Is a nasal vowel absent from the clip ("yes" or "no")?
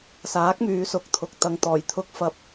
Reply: yes